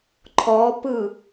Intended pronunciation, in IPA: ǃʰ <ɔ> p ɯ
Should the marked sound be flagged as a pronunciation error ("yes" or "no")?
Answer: no